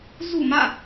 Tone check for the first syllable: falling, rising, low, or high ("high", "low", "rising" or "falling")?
falling